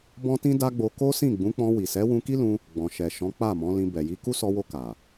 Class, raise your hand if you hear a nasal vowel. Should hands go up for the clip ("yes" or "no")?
yes